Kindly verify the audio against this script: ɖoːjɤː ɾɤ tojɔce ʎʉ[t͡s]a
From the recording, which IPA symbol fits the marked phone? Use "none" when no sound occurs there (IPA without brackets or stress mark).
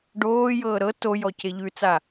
t͡s